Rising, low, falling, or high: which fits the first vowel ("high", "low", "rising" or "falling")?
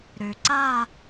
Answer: low